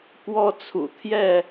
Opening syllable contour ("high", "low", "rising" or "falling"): high